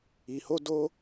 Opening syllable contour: low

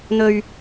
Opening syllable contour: low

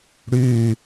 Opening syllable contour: falling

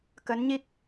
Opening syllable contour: rising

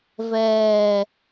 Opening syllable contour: low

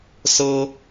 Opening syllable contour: high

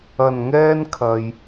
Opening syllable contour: low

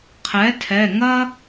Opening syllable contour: rising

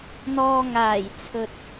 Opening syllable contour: low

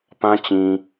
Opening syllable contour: high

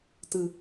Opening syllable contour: low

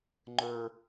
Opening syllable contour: low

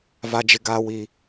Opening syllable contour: high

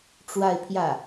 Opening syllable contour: falling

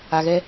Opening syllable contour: low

